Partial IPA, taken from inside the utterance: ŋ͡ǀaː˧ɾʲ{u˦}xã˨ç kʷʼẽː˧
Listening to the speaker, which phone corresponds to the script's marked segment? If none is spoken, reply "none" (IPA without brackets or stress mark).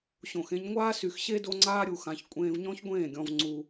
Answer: u˨